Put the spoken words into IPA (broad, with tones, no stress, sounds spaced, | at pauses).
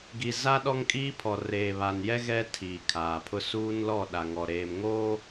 ɡ i˨ z a˦ ɗ ɔ˦ ŋ kʼ iː˦ pʰ ɔ˨ r eː˨ β a˨ n j ɛ˦ ɣ ɛ˦ tʰ iː˨ kʰ aː˨ pʰ ʊ˦ s uː˦ n l ɔ˦˨ ɗ a˨ ŋ ɔ˨ ɾ eː˨ m ŋ oː˦